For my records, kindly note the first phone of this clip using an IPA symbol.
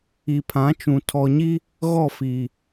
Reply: i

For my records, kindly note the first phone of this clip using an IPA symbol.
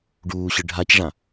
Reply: ɖ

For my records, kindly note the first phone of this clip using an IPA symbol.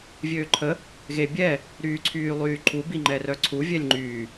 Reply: vʲ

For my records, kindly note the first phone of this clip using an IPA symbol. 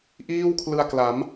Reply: ʔ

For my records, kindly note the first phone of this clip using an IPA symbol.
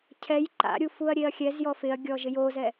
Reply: cʰ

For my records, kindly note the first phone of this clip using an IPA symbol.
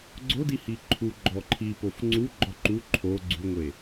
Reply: ɡ͡ǀ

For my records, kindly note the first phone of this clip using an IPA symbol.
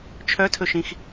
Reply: t͡ʃʰ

